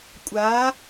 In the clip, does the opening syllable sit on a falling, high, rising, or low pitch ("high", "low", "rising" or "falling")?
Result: rising